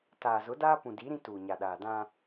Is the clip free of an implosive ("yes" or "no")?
no